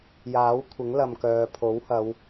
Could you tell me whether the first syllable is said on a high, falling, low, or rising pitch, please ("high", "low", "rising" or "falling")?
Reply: rising